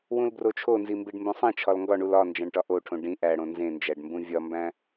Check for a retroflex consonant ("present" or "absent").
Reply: present